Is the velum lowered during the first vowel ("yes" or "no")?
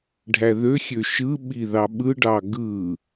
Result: no